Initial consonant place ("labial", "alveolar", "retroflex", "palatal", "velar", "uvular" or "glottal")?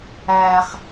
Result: uvular